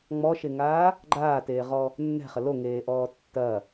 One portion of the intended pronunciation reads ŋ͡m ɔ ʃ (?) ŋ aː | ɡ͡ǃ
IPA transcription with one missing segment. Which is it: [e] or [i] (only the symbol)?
e